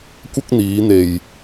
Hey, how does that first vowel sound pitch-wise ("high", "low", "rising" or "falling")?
high